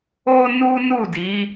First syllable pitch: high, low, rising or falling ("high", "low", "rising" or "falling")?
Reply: high